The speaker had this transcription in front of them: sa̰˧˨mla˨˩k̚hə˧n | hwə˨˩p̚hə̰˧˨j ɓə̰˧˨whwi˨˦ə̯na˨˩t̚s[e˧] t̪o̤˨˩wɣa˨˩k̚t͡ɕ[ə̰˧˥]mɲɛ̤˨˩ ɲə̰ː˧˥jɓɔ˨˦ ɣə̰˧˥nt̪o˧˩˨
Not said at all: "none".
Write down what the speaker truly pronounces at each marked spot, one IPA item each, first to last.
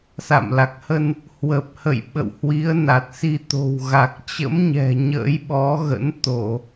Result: i˧, ə̰˧˥

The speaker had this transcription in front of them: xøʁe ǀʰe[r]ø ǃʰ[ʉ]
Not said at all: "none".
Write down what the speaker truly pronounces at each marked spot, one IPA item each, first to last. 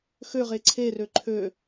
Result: r, ø

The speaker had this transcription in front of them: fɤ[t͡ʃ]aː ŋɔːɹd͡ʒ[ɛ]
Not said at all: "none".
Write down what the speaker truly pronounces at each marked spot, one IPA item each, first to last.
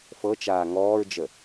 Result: t͡ʃ, ə

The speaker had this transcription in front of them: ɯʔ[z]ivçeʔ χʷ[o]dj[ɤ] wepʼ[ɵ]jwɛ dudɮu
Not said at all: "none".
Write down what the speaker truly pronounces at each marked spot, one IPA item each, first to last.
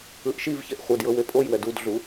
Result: ʃ, ɤ, ɤ, o

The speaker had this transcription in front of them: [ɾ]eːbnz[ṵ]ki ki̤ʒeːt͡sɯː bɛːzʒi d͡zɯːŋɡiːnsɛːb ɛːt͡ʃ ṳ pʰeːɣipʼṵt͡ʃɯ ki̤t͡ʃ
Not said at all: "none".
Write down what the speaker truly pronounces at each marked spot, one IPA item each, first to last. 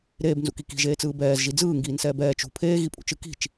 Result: ɾ, ṵ

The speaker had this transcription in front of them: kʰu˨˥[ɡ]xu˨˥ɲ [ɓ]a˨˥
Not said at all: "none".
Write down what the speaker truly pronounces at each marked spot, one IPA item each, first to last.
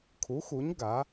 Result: none, ɡ

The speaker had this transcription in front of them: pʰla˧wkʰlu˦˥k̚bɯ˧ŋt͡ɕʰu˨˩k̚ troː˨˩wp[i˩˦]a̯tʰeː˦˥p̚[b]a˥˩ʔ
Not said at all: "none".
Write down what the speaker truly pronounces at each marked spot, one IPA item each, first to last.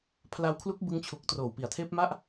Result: i˩˦, m

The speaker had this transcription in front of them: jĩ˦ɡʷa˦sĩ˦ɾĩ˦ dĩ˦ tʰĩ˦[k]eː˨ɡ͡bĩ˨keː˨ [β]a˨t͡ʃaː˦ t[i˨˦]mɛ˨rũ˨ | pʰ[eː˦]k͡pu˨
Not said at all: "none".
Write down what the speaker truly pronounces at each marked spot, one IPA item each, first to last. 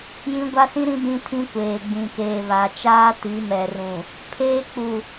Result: kʷ, β, i˨˦, eː˦

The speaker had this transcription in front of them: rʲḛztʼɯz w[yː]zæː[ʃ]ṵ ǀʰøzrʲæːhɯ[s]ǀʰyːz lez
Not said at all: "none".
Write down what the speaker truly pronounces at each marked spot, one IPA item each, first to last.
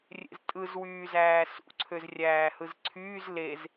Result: yː, s, z

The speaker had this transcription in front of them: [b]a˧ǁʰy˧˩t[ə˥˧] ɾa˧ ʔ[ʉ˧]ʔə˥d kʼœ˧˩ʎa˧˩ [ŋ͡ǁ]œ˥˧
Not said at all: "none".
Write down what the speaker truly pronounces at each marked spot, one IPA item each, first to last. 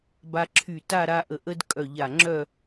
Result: b, a˥˧, ə˧, ŋ͡ǁ

